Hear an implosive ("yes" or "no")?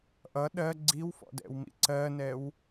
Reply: yes